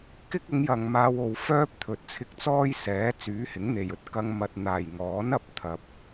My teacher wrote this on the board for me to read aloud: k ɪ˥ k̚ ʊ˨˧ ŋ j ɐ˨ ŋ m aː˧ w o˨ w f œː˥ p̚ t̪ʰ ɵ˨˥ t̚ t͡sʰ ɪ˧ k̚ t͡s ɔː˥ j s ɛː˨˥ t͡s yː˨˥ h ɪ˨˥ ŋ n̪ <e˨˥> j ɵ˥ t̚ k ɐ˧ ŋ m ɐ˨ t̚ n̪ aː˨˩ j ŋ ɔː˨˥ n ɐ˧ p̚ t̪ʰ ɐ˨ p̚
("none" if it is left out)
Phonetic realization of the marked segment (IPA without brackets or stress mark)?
e˨˩